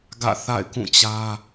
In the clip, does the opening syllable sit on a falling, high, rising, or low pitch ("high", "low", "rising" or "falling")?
falling